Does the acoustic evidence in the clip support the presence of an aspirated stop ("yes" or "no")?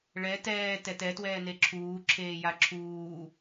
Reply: yes